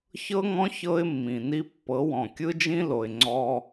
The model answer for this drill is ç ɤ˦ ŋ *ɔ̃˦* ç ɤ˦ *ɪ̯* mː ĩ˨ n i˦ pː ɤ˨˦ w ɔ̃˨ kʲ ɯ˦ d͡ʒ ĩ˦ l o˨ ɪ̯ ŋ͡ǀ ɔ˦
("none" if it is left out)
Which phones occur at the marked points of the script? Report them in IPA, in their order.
ɔ̃˦, ɪ̯

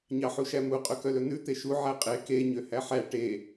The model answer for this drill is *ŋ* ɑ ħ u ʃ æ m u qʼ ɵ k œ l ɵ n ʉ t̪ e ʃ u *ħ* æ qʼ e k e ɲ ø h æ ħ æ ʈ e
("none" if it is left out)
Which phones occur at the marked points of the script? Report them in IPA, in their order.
ɲ, ʕ

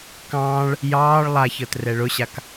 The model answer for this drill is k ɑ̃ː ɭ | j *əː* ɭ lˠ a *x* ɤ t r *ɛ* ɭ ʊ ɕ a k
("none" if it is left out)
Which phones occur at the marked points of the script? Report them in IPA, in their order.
ɑː, ç, ɛ

